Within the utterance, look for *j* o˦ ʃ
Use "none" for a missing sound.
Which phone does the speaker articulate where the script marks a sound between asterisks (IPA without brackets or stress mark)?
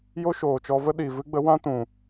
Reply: j